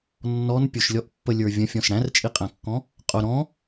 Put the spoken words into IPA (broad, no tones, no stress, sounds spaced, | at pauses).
nː ɔ n pʲ ʊ ʃ lʲ ɔ ʔ pː ə lʲ ə˞ vʲ ə̃ fʲ ɔ̃ s ɽ æ̃ r t͡ʃʼ i qʼ æ̃ kː ɔ̃ | qʼ ʊ ɾ ɔ̃